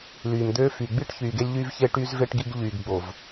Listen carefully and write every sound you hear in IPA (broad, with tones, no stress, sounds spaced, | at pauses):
l yː˨ m d̪ øː˦ f y˨ ɡ͡b i˦ ʈ ç yː˨ ɡ e˦ lʲ ʎ yː˦ v ç eː˦ ʈ y˦ z v e˦ ʈ ɡ i˦ ɡ ʎ yː˨ ɡ ɡ͡b o˨ v